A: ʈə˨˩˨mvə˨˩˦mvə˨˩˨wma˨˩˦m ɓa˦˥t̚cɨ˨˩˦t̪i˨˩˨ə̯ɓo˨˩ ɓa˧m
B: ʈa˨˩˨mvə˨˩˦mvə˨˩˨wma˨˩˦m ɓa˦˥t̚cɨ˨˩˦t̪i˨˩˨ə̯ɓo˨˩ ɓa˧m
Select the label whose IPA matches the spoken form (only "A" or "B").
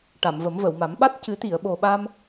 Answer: B